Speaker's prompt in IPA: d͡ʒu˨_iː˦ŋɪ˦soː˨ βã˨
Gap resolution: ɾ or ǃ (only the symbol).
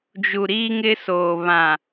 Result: ɾ